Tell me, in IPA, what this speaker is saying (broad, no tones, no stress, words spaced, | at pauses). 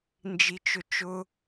nd͡ʒit͡ʃʊt͡ʃʊ